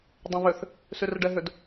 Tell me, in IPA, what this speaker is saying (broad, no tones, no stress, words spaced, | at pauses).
dˤɛ̃βʏθ | syrɖɛɦʏd